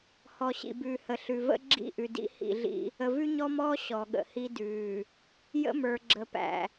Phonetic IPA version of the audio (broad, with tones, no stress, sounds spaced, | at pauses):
h ɔ˨ ɕ ḭ˨ b ʉː˨ h ə˨ ɬ ʉ˨ v ə̰˦ ɡ͡ǁ ḭ˦˨ ʔ ʉ˨ d ḭ˦ h ḭ˦˨ ɮ ḭ˦ | ə˨ v ʉ˦ ɲ ɔ˦ m ɔː˦ ɕ ɔ˨ ɠ ə̰˨ h i˦ d ʉː˨ | j ə̰˦ m ə˞˨ ɡ͡ǁ ə˨ p æ̰˨